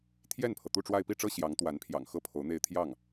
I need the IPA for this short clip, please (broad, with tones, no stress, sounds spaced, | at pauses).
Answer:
t̪ʰ j ɛ˥˩ n pʰ ɤ˩ t̪ u˥˧ ʈ͡ʂ w a˥˧ ɪ̯ p i˥˩ ʈ͡ʂ ɤ˥ ɕ j ɑ˧˥ ŋ t̪ w a˧˥ n pʰ j ɑ̰˨˩ ŋ x ɤ˥˩ pʰ o˧˥ ʊ̯ n̪ e˥˧ ɪ̯ t̪ʰ j ɑ˥˩ ŋ